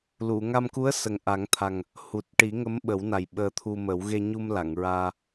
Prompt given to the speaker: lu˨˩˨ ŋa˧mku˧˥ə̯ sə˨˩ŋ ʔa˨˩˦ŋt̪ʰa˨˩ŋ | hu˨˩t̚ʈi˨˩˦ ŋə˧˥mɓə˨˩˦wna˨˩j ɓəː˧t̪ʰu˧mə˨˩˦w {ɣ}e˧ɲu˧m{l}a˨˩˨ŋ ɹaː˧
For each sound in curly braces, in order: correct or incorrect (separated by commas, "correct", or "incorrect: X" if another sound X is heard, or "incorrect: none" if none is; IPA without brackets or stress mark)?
correct, correct